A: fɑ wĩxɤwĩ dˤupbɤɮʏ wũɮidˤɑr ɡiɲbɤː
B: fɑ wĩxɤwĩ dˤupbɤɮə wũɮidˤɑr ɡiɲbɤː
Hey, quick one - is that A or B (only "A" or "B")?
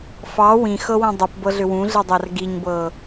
A